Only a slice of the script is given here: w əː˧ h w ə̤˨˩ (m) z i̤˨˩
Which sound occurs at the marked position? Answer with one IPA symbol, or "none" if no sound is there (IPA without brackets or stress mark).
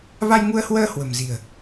m